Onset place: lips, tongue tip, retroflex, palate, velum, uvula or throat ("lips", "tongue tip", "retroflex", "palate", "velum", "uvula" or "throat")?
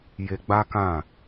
palate